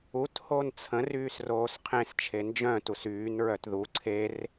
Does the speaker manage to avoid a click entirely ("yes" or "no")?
no